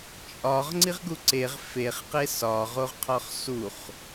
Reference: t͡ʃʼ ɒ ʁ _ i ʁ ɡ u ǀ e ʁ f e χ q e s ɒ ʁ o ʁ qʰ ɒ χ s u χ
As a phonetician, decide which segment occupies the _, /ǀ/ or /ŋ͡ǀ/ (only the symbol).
ŋ͡ǀ